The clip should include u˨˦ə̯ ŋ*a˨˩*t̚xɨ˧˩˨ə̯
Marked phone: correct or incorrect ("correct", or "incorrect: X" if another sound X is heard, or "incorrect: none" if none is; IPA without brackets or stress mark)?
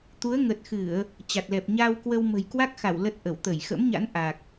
incorrect: ə˨˩